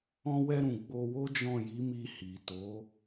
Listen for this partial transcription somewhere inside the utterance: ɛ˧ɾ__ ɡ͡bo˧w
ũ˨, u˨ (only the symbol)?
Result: ũ˨